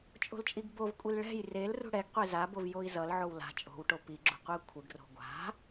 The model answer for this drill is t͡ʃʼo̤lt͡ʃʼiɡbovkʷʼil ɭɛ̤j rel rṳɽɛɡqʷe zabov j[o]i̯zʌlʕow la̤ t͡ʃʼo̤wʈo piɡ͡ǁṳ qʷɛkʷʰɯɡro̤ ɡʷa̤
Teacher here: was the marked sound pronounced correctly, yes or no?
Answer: yes